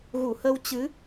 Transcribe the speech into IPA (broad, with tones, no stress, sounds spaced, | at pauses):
ɣ u˧˩ h ə˧ w t͡ɕ ɨ˨˦